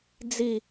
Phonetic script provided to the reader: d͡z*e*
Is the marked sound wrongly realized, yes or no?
yes